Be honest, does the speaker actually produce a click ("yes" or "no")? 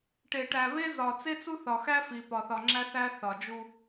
yes